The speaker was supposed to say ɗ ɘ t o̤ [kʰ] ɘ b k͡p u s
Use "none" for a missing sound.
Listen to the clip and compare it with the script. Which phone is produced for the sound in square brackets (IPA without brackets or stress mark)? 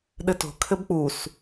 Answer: kʰ